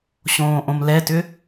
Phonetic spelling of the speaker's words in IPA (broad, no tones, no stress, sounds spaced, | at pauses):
ɕ õː ʔ õ m l ɛ t ʏ